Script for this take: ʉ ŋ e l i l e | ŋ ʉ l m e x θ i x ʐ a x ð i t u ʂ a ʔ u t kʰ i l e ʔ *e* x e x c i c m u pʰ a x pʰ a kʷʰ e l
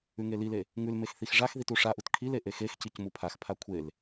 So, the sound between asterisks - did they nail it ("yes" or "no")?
yes